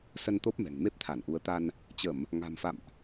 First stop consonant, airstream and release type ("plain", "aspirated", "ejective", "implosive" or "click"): plain